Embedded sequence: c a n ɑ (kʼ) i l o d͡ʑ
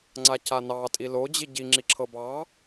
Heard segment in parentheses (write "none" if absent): tʼ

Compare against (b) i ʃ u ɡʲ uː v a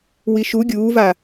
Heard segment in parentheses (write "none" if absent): w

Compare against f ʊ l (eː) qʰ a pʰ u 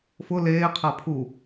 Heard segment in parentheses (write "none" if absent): eː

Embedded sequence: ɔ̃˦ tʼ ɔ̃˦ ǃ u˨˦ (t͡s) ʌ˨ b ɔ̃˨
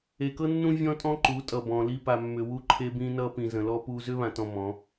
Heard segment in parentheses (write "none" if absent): tʼ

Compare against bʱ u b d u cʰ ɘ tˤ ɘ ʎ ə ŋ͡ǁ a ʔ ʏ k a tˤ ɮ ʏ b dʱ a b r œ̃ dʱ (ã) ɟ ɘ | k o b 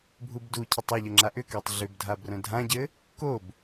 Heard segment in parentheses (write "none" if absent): ã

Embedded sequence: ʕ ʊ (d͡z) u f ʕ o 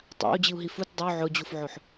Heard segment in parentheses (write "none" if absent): d͡ʑ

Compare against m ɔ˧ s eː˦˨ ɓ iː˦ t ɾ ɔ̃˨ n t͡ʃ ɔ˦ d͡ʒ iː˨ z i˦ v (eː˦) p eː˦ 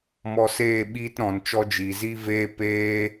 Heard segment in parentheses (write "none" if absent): eː˦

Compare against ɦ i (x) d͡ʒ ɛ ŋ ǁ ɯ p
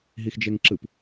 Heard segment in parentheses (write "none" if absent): x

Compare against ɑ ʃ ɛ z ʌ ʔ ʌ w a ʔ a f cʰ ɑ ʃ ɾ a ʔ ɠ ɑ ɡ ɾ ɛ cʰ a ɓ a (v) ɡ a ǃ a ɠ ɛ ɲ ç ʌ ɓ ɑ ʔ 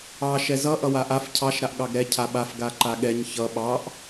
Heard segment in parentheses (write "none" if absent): f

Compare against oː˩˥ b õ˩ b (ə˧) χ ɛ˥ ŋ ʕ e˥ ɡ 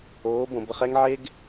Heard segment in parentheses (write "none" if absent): ə˧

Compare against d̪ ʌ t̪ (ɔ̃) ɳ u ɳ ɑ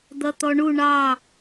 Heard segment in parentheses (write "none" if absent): ɔ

